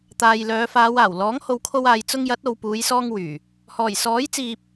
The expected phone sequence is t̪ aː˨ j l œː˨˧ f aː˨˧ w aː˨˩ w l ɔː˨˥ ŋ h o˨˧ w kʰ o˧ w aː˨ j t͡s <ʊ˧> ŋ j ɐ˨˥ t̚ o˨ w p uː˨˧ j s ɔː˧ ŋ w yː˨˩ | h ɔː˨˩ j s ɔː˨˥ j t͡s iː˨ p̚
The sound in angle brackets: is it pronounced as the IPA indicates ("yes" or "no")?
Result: yes